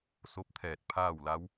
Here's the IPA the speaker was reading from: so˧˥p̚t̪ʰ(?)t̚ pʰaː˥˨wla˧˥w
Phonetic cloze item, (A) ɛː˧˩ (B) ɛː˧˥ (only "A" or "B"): A